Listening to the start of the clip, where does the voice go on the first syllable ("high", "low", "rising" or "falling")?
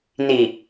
low